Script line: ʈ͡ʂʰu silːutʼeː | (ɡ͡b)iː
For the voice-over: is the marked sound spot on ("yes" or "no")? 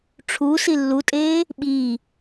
no